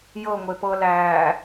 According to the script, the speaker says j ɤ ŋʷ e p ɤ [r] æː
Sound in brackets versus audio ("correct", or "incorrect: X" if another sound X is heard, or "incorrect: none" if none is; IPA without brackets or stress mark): incorrect: l